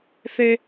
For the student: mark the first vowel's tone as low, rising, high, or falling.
high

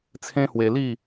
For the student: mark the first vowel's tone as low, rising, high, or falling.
high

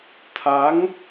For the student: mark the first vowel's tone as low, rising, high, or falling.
rising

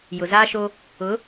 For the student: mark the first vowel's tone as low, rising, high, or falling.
low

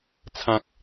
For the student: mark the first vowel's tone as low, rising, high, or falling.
low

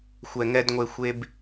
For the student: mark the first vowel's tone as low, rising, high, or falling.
low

